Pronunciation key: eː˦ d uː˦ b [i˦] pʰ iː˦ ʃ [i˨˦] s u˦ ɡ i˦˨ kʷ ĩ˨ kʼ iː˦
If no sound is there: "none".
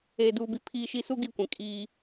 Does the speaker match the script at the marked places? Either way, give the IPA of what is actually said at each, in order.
i˦, i˦

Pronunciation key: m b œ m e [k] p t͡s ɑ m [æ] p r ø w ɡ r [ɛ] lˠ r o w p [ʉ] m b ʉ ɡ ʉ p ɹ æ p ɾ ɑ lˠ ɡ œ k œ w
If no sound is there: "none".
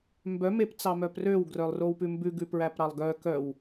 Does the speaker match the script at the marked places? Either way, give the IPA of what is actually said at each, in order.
none, œ, œ, ʉ

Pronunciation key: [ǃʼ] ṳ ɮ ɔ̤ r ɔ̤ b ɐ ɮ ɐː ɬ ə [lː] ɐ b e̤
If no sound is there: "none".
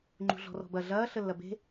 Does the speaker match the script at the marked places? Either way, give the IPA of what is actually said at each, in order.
ŋ͡ǃ, lː

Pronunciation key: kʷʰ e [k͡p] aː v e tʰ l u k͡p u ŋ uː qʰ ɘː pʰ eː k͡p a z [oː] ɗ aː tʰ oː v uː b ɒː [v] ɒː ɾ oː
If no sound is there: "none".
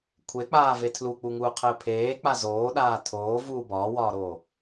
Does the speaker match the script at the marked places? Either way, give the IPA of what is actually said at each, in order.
k͡p, oː, w

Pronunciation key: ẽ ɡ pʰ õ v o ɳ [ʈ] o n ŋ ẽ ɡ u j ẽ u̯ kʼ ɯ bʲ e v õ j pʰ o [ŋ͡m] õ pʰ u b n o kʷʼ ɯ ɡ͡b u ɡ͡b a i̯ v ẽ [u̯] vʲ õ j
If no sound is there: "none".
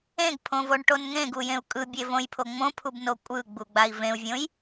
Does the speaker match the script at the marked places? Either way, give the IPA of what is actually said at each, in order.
ʈ, ŋ͡m, u̯

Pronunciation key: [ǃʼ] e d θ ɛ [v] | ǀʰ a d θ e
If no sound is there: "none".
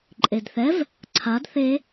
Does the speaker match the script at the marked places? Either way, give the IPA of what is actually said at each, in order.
ǃʼ, v

